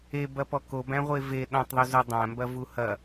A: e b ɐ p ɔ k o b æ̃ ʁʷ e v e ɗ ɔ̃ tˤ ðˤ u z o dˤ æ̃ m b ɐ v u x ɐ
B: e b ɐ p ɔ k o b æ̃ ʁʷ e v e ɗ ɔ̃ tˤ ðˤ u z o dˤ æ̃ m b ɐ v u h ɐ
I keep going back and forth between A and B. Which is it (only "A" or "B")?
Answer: B